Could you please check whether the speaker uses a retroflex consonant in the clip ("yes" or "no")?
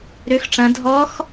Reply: yes